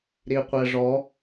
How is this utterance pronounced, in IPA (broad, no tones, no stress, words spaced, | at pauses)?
ɾiqʷɛʐɔ